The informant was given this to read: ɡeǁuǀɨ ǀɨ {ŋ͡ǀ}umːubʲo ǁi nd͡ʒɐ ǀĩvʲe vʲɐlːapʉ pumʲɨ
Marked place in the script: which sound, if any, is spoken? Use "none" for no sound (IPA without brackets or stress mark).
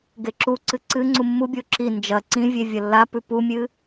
ŋ͡ǀ